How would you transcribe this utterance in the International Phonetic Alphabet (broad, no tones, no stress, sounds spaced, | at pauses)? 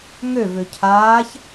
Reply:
ŋ ø v ø cʰ aː ç